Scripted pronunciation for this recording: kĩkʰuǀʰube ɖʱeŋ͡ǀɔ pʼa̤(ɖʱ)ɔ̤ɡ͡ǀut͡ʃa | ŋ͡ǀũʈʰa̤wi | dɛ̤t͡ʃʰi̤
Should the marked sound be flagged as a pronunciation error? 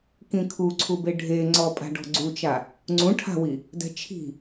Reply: yes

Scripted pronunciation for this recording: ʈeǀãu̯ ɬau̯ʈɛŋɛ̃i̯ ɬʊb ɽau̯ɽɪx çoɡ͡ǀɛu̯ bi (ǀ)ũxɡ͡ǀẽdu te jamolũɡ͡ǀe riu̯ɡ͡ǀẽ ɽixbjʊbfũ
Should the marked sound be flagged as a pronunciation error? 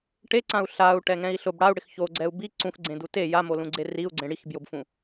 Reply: no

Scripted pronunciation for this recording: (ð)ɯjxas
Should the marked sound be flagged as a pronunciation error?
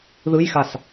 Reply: no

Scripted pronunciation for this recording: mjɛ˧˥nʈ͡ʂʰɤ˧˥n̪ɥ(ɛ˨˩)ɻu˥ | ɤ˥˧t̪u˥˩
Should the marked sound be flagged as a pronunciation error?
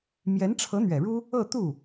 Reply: no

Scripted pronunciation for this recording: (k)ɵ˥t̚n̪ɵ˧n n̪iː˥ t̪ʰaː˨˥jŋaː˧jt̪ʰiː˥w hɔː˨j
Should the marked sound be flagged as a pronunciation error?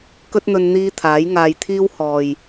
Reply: no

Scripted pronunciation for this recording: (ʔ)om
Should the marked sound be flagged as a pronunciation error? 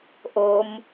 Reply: no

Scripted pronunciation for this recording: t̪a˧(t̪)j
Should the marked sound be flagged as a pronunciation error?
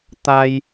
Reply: yes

